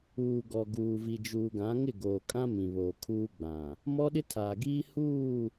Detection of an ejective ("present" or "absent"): present